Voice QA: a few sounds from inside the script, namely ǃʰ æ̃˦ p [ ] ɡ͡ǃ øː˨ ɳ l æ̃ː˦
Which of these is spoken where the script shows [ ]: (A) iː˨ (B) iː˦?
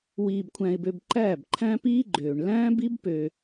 B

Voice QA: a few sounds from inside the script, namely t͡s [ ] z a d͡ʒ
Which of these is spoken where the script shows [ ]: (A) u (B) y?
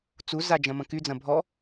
A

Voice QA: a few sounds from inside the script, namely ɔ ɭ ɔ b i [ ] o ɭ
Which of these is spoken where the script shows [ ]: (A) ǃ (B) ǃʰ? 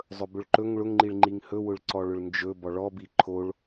B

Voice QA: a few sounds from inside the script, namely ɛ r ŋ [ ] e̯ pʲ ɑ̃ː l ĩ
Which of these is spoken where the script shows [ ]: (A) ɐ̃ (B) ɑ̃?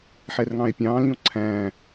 B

